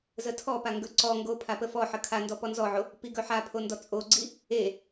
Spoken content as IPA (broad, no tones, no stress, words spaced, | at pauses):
zətʰɔpa ŋɡɵǀɔŋɡo pʰapəfɔħə kʰandɔ pɔnzɔʕo | piɡɵħapʰo ndɔt͡sʼoɡ͡ǀi | e